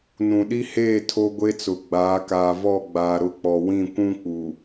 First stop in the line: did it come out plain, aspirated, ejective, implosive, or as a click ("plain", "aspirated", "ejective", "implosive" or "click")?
implosive